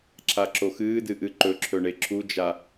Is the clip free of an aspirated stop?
no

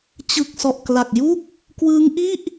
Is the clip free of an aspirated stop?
yes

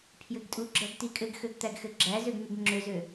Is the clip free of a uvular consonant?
yes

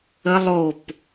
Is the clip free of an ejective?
yes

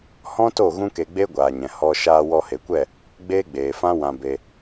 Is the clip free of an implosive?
yes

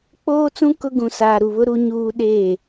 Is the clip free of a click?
yes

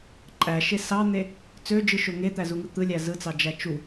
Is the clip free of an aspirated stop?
yes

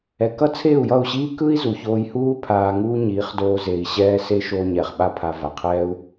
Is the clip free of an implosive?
no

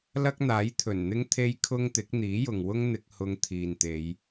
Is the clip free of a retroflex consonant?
yes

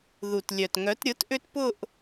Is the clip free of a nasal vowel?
yes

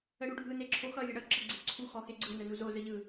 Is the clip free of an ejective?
yes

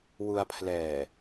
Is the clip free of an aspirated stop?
no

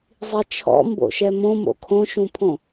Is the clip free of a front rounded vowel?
yes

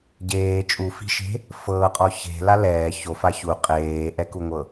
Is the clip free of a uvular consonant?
no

